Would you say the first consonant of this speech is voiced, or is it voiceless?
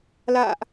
voiced